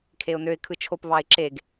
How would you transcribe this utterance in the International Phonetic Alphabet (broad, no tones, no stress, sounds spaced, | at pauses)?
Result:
kʰ e ʊ̯ n ø ɪ̯ kʰ ɯ t͡ʃʰ o p β ɑ ɪ̯ ǁ e ɡ